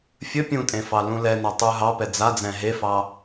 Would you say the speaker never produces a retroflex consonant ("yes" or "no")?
yes